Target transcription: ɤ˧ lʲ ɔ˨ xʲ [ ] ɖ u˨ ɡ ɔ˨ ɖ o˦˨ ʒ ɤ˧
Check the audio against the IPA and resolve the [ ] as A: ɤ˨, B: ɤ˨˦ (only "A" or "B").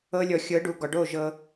B